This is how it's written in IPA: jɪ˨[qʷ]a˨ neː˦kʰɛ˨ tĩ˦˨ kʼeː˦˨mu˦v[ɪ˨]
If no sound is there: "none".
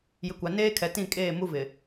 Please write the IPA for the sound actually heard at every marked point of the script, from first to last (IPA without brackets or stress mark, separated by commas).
kʷ, ɪ˨